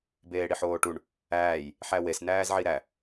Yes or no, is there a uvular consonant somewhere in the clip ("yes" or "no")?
no